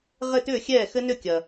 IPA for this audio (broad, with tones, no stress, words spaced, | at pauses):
ʁɘ˥˧tʏː˥˩xʲɛː˥˩xɘ˦˥ nʏ˥˩kʲɐ˨